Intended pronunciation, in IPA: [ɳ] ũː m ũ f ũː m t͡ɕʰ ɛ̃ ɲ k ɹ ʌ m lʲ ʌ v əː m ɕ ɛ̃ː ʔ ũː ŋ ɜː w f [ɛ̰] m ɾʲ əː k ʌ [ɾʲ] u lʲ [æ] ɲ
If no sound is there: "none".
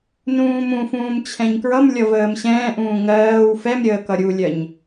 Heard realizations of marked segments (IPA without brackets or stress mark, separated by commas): n, ɛ, ɾʲ, ɜ